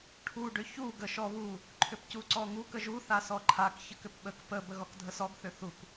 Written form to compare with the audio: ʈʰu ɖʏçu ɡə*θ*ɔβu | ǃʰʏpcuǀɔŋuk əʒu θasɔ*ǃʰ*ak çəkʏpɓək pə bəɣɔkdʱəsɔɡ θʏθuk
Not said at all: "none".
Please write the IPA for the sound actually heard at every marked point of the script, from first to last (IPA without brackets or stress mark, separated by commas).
ʃ, ǃʰ